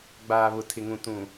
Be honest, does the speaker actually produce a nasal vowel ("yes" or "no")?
yes